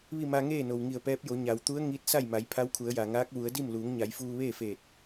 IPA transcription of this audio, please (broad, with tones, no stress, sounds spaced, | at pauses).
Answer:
ʋ i˥˨ m a˧ ŋ eː˥˨ n o˩ w ŋ i˧˩ ə̯ p ɛː˧˥ p̚ j o˩˧ ɲ a˩ w t̪ u˧˥ ə̯ ŋ i˧˥ t̚ s a˥˨ j m a˩˧ j pʰ a˧˥ w kʰ u˩˧ ə̯ j a˩ ŋ aː˧˥ k̚ ʋ u˩˧ ə̯ d i˥˨ m l uː˩˧ ŋ ɲ a˩˧ j f uː˧ ʋ eː˥˨ f eː˧˩ t̚